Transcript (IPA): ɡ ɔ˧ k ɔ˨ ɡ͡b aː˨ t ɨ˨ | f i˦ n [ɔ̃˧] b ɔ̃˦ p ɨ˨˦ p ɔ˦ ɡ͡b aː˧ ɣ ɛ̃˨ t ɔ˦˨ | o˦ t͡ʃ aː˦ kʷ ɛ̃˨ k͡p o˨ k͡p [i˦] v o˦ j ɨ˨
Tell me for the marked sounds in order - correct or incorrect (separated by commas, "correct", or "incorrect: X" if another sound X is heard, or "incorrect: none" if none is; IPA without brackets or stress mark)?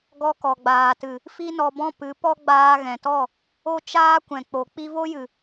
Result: incorrect: ɔ˧, incorrect: i˧